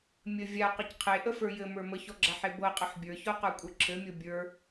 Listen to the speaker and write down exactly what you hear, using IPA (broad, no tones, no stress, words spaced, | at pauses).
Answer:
mʲə vʲa qɘcqʰe ʔəfə˞jɘmə˞ məçɔɡ͡ǁaħe bɤqʼɘħ bʲə˞çɔ qə˞kʷʼə˞ǁʰɘmʲɤ bʲə˞